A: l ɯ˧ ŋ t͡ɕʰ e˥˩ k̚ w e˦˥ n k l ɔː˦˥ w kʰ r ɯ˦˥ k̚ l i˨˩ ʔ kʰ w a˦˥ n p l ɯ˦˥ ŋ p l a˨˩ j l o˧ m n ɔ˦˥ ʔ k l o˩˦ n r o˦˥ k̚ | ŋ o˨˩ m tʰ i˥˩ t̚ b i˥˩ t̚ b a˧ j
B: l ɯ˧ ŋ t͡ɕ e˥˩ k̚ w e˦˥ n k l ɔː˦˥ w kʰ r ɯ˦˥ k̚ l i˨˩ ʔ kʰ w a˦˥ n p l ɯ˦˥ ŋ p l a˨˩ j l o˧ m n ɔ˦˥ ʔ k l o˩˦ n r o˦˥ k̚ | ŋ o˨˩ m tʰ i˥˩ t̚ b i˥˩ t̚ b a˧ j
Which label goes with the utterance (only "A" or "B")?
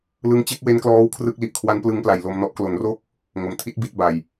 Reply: B